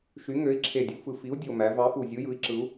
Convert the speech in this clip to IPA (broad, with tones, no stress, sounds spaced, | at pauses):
ʃ y˨˥ ŋ ø˨˥ i̯ ǁʰ e˨˩ dʲ u˩˧ f ɯ˨˩ f i˨˥ u̯ dʲ o˨˩ m æ˩˧ v ɑ˨˥ f u˨˩ zʲ ɯ˨˥ j ɯ˨˥ i̯ ǁ ɯ˨˥ u̯